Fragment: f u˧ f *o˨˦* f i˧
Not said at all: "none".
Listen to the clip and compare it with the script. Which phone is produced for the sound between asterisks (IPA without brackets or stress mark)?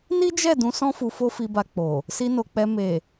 o˦